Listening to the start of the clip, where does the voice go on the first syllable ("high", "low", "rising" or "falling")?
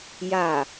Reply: low